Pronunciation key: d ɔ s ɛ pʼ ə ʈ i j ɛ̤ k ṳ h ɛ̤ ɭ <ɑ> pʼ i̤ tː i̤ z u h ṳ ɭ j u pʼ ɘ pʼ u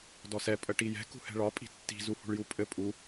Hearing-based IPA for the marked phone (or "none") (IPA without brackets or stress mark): ɒ